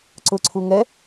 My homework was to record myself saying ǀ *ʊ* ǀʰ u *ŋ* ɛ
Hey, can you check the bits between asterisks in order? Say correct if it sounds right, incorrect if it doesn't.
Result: correct, correct

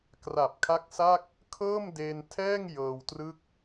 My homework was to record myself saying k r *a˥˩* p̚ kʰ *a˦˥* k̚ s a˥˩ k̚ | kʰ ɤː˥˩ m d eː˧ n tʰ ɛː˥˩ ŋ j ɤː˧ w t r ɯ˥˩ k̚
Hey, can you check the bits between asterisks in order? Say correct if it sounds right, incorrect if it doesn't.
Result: incorrect, correct

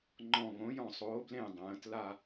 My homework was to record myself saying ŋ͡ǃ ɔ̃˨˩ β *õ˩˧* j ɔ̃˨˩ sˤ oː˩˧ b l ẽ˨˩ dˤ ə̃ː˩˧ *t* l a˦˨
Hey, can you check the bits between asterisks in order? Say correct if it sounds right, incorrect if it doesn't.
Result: correct, correct

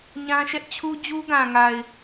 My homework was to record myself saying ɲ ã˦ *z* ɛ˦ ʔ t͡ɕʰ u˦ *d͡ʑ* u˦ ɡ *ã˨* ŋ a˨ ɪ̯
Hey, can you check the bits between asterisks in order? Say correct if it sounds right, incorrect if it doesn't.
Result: incorrect, correct, correct

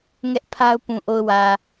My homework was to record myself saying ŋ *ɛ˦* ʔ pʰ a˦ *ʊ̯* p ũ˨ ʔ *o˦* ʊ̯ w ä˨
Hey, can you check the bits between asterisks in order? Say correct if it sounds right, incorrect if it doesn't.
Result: correct, correct, incorrect

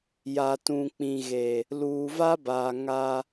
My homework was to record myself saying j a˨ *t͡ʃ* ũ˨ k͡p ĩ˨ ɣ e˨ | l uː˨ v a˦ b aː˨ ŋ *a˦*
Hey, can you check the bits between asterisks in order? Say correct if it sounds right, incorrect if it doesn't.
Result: incorrect, correct

